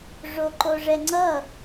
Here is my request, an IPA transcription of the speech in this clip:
ʐ o ǃ o ʐ ɛ ŋ͡ǀ ʌ

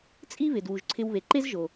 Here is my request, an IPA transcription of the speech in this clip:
t͡sʼ i˥ β ɪ˩ d w u˩ ʒ ǀʰ ɪ˧ w β e˩ ǃ e˥ z ʒ o˩

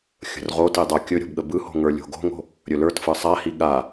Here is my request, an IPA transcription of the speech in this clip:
xʲ ə̤ r ʁ o t i dˤ ə˞ kʲ ɵ ɾʲ o̤ b ɠ ə b ɯ h o̤ ŋ ə˞ lʲ o̤ ɡ o̤ ŋ o̤ | ɾʲ ɵ l ə˞ t f ɯ sˤ a h i ɠ a

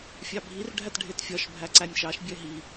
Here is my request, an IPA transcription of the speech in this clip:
fʲ ɑ bʱ i r ɖʱ æ t ɖʱ e t fʲ ɒ ʃ bʱ æ ǀ æ nʲ ʃ ɑ ʃ bʲ ɛ ɦ i

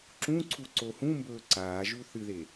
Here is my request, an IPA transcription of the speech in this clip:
ǁ ũ ǀʰ u ǀ o h ũ m b ɵː ǀ aː ʒ u θ ɨ ð e

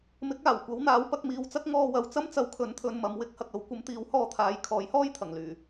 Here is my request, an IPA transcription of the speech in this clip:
m ɪ˨˥ k̚ aː˨˩ w kʷ ɐ˨˥ w n̪ aː˨˥ w p ɐ˧ k̚ m iː˨ w t͡s ɐ˥ k̚ ŋ ɔː˧ w ɐ˨ w t͡s ɐ˥ m t͡s ɐ˨˥ w kʰ ɵ˨˥ n t̪ʰ ɵ˨ n m ɐ˨ m w ɪ˥ k̚ h ɐ˨ k̚ ɐ˨˥ w kʷ ɐ˨˥ m t̪ iː˨˥ w h ɔː˧ t̪ʰ aː˨˧ j kʰ ɔː˨˥ j h ɔː˥ j t̪ʰ ɐ˨˩ ŋ l yː˨˩

